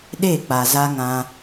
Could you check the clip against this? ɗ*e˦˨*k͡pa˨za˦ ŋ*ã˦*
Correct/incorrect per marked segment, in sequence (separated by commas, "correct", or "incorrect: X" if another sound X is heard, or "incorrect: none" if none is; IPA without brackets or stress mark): correct, correct